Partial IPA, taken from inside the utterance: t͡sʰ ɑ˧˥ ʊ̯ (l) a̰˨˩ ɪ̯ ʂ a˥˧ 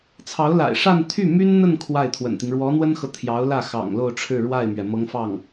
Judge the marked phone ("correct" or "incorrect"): correct